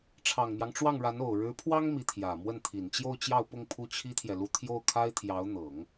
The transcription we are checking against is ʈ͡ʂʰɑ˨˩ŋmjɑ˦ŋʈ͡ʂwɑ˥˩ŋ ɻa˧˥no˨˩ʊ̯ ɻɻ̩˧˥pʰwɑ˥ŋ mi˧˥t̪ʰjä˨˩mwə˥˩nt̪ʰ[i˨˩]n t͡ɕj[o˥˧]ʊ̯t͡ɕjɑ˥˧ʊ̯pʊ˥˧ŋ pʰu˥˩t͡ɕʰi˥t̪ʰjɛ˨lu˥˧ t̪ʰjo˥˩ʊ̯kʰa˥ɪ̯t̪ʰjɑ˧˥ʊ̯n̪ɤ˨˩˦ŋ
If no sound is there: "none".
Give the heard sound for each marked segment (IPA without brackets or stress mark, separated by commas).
i˨˩, o˥˧